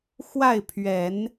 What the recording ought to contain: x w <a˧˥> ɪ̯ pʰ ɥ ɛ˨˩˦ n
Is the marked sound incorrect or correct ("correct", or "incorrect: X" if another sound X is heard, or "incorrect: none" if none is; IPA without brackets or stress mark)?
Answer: incorrect: a˥˩